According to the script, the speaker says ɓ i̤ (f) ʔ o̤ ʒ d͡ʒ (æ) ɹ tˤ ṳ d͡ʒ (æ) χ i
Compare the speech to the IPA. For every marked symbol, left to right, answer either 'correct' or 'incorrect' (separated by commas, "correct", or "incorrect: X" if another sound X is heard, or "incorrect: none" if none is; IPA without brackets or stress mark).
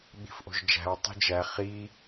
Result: correct, incorrect: æ̤, correct